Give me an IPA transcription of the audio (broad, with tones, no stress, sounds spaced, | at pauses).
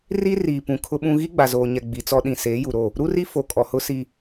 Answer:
r i˦ r iː˨ p ũ˨ kʰ ʊ˦ ɓ ũ˦ ɣ i˦ ɡ͡b a˨ z oː˨ ɲ ɛ˨ ɡ͡b i˨ t͡s ɔ˦ ɗ ĩ˨ s eː˨˦ j u˨ ɾ o˦˨ | ɾ u˦ r i˦ f o˨ kʼ ɔ˨ h ʊ˦ s i˦